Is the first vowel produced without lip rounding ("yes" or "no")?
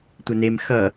yes